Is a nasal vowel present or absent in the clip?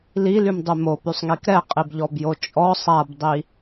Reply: absent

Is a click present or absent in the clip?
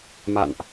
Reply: absent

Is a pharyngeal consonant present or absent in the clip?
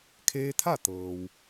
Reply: absent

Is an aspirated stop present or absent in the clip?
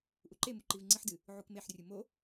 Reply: absent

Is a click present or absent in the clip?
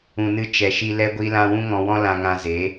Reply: absent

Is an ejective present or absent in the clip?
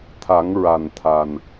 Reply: absent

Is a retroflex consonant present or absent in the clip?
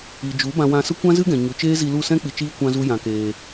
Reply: absent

